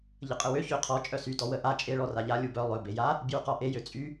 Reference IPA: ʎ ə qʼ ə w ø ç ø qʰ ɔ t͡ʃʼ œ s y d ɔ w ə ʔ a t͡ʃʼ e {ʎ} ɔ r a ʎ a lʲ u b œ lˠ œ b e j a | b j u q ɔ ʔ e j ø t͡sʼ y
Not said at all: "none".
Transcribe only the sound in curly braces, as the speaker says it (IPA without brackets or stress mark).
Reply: ɭ